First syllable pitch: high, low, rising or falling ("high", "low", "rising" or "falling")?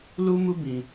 high